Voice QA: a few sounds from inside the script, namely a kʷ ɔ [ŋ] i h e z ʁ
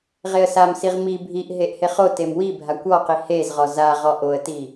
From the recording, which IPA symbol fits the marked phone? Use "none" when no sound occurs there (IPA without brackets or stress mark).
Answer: q